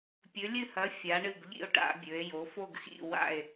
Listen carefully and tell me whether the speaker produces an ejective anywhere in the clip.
no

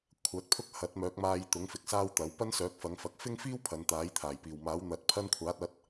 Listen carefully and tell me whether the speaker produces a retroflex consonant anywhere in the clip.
no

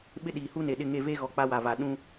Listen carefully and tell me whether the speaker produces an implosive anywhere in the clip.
yes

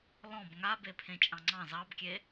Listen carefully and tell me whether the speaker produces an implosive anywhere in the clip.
no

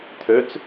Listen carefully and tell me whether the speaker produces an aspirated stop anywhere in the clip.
yes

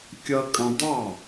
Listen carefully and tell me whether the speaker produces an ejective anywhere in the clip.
yes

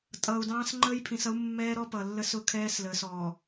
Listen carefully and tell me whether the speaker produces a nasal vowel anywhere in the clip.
yes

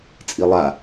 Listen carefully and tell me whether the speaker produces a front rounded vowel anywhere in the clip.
no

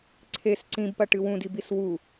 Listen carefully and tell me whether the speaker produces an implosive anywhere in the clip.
no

